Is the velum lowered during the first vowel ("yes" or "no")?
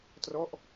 no